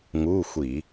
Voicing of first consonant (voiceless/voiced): voiced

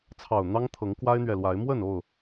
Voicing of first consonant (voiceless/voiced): voiceless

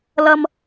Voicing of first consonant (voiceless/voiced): voiced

